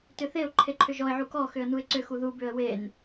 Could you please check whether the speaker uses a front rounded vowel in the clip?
yes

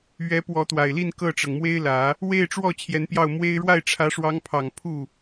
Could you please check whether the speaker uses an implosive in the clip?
no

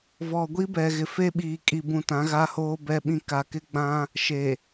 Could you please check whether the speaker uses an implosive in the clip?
yes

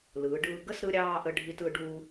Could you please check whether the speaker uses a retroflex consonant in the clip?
yes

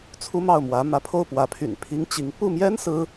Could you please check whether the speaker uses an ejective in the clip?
no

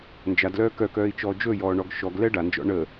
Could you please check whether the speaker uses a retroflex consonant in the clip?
yes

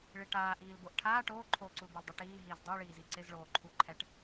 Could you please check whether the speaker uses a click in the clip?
yes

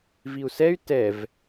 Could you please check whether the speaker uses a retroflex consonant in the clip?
no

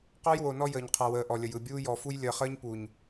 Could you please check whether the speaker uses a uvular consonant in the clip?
yes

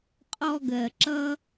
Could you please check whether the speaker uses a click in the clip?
yes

